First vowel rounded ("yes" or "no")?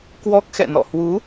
yes